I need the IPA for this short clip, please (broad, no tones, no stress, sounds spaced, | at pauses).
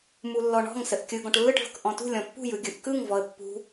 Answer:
m u lː ɔ ɳ ɔ̤ ŋ s ə ʔ kʲ ɯ ɡ ɔ̃ ʈ lː ɯ ʈ v ə̤ k ʔ ɔ̃ t ṳ lʲ ɔ̃ pː ṳ j ɯ ɡʲ ɯ ʔ k ɯ ŋ v ɔ ə̯ pː ṳ